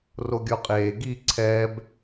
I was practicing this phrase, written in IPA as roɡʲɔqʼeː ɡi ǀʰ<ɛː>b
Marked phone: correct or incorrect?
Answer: correct